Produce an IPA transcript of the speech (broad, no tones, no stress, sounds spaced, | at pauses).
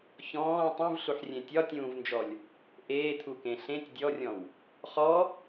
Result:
ç ɔ̃ː tˤ ũ v ɬ u ħ rʲ ẽ tʲ ɒ tʲ ũː v n d͡ʒ ɔ lʲ | ʔ eː t̪ʰ u k ẽ ɬ ẽ tʲ dʲ ɔ rʲ ɔ̃ w | χ ɔ